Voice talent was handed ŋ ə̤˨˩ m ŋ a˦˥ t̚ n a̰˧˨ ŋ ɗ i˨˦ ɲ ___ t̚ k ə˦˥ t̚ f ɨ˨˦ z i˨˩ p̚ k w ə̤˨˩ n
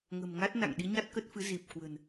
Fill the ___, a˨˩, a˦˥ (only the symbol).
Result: a˦˥